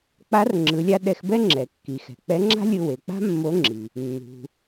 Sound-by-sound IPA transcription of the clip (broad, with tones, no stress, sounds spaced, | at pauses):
k͡p a˧˥ r ŋ͡ǁ ɯ˩˧ lʲ a˧ ɗ ɛ˧ x b ɛ˥ ŋ͡ǁ ɛ˩ kː i˩ x ɛ̤˩ k͡p ɛ˧˥ ŋ͡ǁ a̤˥ lʲ ɯ˧ w e˩ k͡p a̤˥ mː o˧˥ ŋ͡ǁ i˩ | nː ṳ˩